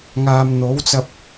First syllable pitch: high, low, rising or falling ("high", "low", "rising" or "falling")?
low